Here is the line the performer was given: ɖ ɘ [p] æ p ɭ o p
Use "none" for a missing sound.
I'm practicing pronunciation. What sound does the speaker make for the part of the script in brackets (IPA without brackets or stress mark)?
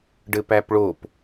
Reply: p